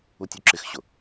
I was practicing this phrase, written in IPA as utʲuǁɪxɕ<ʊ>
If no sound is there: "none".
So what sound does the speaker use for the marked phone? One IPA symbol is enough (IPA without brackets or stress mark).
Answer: ʊ